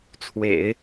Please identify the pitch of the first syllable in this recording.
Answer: low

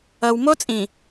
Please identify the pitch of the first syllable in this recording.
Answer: low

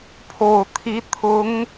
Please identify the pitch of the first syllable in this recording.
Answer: low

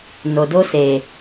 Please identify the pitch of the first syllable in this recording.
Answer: low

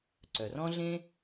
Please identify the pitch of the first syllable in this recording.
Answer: low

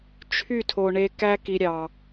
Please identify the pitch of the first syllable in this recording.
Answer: falling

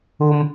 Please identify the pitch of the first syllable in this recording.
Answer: high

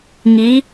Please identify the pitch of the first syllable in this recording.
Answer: rising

